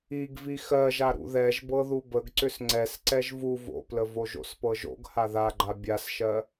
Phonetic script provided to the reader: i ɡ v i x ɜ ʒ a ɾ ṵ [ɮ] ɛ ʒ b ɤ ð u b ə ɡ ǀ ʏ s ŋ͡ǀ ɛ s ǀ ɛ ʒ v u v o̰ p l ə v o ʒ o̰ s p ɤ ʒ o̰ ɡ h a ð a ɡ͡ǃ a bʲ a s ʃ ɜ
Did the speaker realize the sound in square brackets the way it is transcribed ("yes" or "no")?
no